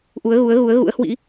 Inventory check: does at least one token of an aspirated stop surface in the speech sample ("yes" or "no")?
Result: no